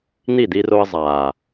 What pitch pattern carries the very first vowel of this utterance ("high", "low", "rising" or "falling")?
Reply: falling